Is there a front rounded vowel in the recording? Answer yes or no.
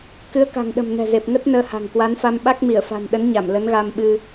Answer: no